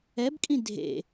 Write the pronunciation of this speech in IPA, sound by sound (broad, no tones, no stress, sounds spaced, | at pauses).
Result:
ɛ b kʼ ĩ dʱ ḛ